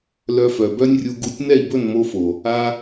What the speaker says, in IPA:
l œ˧ f œ˨ b œ˦ nʲ rʲ u˧ ɡ u˧ tʲ n ɛ˦˨ i̯ b ɵ˦˨ n m o˧ f o˨ | a˧

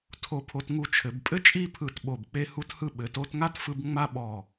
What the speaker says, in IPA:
tʰ o˧ pʰ o˧ t ŋ u˧ t͡ʃʰ ɘ˩˧ b pʼ ɘ˥ t͡ʃʼ i˥˧ pʰ ɯ˧˩ t ɓ o˧˩ b k͡p e˥ h u˥ t h ɯ˥ ɓ ɘ˩˧ t o˥˧ t ŋ a˥ t f ɯ˧ b ŋ͡m a˥ ɓ ɔ˧˩

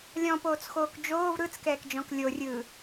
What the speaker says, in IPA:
lʲ ɔ̃ p oː t͡s x oː k d͡ʒ oː v ɾ ɯ t͡s k ɛː k d͡ʒ ɔ̃ k lʲ o rʲ ɯː

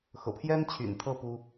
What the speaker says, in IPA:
x ɤ̰˨˩ pʰ j ɛ˥ n t͡ɕʰ y̰˨˩ n t̪ʰ ɤ˥˩ p u˥

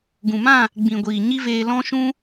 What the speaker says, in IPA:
ɡ ũ˨ m ã˦˨ | ɡ͡b ĩ˨ ɡʷ iː˨ ɲ i˦ v eː˧ l ɔ̃˦ ʃ ũ˦

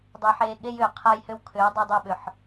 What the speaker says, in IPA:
dˤ ɪː˧ ħ eː˧ ɠ e˦ j ʏː˨ qʰ a˦ j h ʏ˦ w kʰ ʏː˨˦ w dˤ œ˧ dˤ œ˧ ɓ ʏ˨ ħ

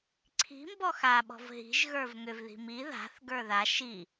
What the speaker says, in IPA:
ǀʰ i̤ m b ɔ x a ɓ ɔ̤ v ɦ i̤ ʒ ɣ ə˞ v ŋ ʏ v ð i̤ m i ð a̤ θ ɡ ə˞ ð a ʃ i

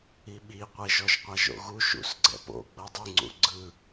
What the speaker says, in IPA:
i ɓ i qʷ e ʒ ɔ ʒ qʷ a ʒ o̰ ɣ u ʃ ṵ s ɡ͡ǀ ɛ̰ p o̰ ɡ͡b ɤ dˤ i ŋ͡ǀ ṵ ɡ͡ǀ ɯ

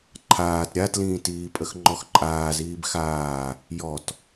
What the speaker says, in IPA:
ǃʰ aː t ɾʲ a t l ĩː t iː pʼ ə x ŋ͡ǃ ɔ x ǃʼ aː z iː b x aː | j ɔ t

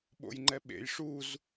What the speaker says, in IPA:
ɓ o̰ j ŋ͡ǃ ɛ ɓ ḛ j ʂ u z

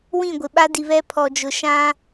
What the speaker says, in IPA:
w ĩ˦˨ ɡʷ ɪ˨ ɓ a˦ d i˨ β ɛ˦ pʰ ɔ˨ d͡ʒ ʊ˨ ʃ ã˦

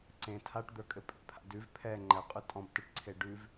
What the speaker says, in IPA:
ǀ ẽ tʰ a ʈ d̪ ə˞ kʼ ɘ pʼ ḛ pʰ a̰ d ʉ v pʰ ɛ ŋ͡ǃ ɛ qʼ ʉ tʼ ɔ̃ b t ə˞ ʈ ǀʰ e ɖ ʉ v

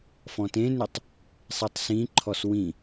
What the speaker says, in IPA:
f ɔ̃ t ẽ n ʏ tˤ | sˤ e tˤ s ĩ ǃʰ ɔ s w ĩ

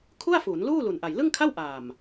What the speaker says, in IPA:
kʰ u˥˩ a̯ f u˩˦ n l uː˥˩ l u˨˩ n ʔ a˨˩ j l ɯ˥˩ ŋ kʰ a˥˩ w ʔ aː˨˩ m

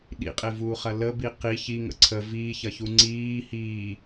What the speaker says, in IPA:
ɗ ḭ qʼ e v uː χ ɐ l ə b i q i ç i ŋ ə̰ ǀʰ ə v iː ç ɐ ç u ŋ͡ǀ iː h iː

